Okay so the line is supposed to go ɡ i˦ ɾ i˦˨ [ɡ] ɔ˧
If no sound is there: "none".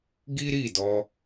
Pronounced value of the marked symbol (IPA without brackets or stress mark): d